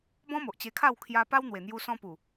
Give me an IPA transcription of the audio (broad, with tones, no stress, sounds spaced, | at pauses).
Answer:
b ɔ̃˦ m o˨ ʔ t͡ɕ e˧ kʰ a˥˧ w kʰ j a˧ p a˦ w n̪ w e˨˩ n̪ j u˧ s ɔ̃˧ p u˨˩